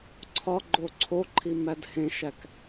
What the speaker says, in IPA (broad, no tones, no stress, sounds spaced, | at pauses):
ǀʰ ɒ ɡ͡ǃ o ǀʰ o ǃʰ i m æ d h ẽ ʃ æ k